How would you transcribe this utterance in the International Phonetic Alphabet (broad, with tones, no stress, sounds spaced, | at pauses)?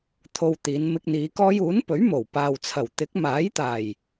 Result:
t̪ʰ o˧ w t̪ iː˨˧ n m ɪ˧ k̚ n̪ iː˨˧ k ɔː˥ j uː˨˥ n p ɵ˨˥ ɥ m o˨˩ w p aː˨ w t͡sʰ ɐ˨˩ w t̪ ɪ˨˥ k̚ m aː˨˥ j t̪ aː˨˩ j